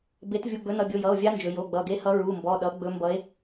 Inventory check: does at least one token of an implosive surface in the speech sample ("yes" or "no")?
yes